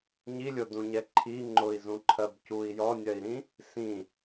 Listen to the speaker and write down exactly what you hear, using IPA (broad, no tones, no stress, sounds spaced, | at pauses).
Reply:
ɲ i lʲ o d ũ ɲ ɛ ǃʰ i ŋ͡ǃ ʊ i̯ z ũ ǃʰ ɜ b c u i̯ j ɔ nʲ ɜ i̯ ɾ ĩ | s ĩ